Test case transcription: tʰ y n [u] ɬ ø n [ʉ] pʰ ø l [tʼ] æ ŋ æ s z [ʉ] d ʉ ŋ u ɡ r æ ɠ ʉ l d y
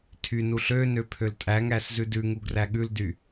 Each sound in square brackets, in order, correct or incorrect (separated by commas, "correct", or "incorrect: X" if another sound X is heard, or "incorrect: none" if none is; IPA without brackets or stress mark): correct, incorrect: ø, correct, correct